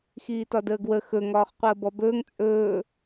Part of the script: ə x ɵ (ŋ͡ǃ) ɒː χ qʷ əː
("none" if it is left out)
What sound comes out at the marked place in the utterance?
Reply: ŋ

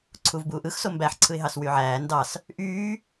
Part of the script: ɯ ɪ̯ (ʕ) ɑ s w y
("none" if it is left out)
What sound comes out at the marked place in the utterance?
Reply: ɦ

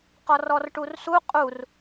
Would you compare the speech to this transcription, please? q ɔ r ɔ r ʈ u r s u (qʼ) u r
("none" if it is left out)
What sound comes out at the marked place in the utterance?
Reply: qʼ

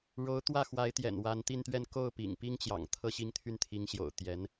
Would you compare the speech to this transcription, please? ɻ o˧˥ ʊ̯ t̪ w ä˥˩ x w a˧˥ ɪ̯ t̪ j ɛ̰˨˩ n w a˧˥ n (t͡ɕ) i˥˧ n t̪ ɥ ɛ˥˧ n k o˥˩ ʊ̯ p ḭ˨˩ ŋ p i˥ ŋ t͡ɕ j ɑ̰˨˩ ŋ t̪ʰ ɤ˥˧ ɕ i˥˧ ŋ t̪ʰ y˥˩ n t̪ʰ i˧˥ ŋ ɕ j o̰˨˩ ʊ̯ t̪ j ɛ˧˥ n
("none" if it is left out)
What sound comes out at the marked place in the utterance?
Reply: t̪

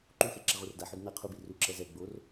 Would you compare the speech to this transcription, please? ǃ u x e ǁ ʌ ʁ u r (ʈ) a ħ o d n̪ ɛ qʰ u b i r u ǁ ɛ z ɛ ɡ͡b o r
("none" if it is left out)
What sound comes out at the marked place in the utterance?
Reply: d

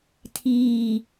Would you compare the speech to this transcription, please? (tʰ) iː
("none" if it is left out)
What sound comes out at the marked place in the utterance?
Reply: tʰ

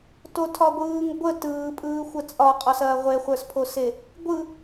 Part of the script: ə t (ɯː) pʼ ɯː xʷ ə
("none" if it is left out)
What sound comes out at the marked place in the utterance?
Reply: ɯː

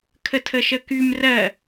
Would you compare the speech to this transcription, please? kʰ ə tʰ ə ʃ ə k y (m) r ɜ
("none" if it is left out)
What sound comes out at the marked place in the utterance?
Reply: m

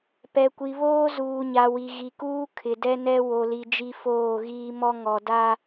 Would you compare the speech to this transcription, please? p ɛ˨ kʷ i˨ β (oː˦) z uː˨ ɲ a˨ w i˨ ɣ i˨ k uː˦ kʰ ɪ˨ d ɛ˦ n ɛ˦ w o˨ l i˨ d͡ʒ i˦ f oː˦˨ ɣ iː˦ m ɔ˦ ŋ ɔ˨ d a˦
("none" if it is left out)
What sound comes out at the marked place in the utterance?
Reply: oː˦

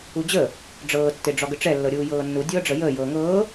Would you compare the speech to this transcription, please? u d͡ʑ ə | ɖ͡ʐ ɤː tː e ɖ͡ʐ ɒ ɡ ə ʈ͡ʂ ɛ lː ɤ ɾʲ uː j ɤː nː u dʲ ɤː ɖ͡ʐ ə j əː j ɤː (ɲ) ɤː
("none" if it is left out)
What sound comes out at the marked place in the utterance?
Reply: ŋ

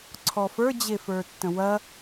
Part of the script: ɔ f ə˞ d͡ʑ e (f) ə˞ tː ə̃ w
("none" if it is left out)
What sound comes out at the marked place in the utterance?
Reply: f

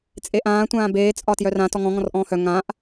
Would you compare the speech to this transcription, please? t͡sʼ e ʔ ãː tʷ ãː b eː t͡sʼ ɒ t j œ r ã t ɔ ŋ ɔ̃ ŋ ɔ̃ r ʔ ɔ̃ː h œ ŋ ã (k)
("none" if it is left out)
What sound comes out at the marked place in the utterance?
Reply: ʔ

